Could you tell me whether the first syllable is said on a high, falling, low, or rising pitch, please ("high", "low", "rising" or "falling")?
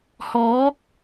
rising